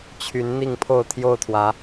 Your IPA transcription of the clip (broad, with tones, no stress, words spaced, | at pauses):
t͡ɕʰy˨˦n n̪i˥˨ŋpʰo˥˨ʊ̯ t̪ʰjo˥˨ʊ̯t̪ʰwä˨˦